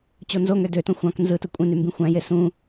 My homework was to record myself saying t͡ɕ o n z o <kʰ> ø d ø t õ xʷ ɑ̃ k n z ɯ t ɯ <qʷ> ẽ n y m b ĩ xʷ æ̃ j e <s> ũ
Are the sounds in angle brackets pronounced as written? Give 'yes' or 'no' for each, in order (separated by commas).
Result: no, no, yes